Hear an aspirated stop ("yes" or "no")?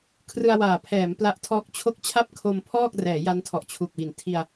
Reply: yes